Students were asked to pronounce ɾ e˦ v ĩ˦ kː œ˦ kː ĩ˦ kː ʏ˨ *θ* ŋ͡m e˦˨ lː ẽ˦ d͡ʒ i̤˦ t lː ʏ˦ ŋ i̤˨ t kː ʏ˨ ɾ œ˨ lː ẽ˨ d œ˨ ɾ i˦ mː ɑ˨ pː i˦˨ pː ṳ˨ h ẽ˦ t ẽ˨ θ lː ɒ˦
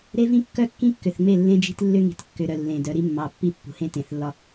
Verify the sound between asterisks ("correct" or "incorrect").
correct